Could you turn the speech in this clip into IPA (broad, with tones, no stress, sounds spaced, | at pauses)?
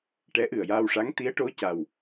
ʈ ɛ˧˥ ʔ ɨ˨˩ ə̯ j aː˧ w ʂ a˧˥ ŋ t̪ i˧˥ ə̯ ʈ o˧˥ c a˨˩ w